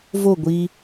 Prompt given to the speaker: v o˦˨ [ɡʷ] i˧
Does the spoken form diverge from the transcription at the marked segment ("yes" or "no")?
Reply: no